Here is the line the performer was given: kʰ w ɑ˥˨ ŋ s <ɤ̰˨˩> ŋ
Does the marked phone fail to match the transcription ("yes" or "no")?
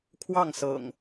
no